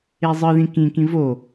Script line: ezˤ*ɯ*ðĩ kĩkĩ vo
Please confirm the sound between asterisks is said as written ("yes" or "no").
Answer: yes